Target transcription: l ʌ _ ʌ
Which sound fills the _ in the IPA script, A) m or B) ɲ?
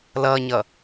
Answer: B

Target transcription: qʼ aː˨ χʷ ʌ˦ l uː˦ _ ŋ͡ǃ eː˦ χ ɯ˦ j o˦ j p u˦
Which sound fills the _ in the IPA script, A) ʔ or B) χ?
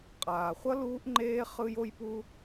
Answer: A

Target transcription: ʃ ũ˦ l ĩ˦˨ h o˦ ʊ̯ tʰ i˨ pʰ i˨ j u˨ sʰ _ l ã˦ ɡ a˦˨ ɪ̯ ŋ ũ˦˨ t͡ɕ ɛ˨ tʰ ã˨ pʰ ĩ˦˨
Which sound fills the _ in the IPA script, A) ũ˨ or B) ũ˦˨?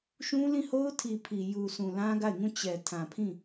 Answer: A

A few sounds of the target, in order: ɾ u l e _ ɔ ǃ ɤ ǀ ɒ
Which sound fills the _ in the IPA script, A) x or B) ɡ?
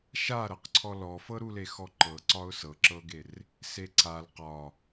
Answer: A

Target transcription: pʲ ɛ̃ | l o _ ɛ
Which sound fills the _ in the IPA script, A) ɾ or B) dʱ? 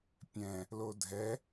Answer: B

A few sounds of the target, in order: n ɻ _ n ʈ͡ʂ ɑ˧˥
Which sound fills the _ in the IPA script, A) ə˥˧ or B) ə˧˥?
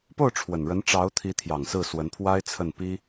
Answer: B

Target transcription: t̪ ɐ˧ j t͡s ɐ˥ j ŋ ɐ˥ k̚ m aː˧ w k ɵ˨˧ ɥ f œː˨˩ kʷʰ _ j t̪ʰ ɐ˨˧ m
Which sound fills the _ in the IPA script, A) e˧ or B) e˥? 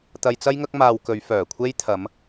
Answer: B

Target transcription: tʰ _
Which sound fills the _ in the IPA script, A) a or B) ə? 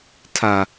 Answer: A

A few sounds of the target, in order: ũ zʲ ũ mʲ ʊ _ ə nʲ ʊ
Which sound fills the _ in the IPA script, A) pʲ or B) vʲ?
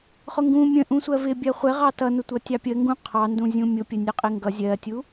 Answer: A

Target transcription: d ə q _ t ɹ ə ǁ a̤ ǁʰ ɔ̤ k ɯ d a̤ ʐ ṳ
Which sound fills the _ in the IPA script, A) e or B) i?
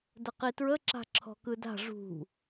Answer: B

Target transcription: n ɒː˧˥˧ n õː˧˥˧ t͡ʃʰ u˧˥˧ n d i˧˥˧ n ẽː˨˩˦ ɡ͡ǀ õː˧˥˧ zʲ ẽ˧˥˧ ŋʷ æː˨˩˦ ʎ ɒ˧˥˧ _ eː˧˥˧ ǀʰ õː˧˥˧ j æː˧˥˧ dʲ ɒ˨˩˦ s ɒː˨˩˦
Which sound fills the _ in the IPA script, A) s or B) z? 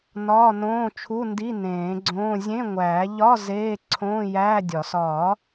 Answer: B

